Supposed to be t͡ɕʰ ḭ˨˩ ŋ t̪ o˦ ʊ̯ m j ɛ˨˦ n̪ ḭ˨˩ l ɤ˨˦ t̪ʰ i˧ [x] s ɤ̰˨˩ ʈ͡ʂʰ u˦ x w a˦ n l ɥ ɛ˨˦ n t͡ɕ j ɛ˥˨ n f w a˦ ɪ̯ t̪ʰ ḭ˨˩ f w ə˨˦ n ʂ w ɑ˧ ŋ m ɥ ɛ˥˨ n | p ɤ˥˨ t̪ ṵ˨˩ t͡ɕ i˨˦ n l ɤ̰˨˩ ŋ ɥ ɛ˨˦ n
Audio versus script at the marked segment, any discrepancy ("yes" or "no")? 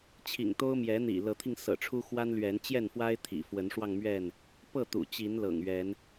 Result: yes